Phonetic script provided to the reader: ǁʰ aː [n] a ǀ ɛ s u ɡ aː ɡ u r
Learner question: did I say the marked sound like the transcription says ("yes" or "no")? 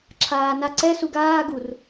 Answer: yes